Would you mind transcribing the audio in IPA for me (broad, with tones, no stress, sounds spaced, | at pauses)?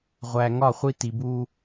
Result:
ʁʷ æ˨ ŋ ɒ˦˨ χʷ i˦ t i˨ b u˦